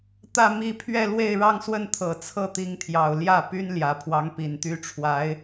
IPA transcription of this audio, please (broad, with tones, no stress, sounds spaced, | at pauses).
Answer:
t̪ ä˥˧ m i˥˧ pʰ ɥ ɛ˥˧ l w e˥˧ ɪ̯ ɻ ɑ˥˧ ŋ s w ə˥˩ n t̪ʰ ɤ˨˩ t͡sʰ ɤ˥˩ t̪ i˧˥ ŋ t̪ʰ j ɑ˨˩ ʊ̯ l j ä˥˩ p y˥ n l j ä˨˩ pʰ w ɑ˧˥ ŋ p i˨˩ n t̪ y˥ ʈ͡ʂʰ w a˧˥ ɪ̯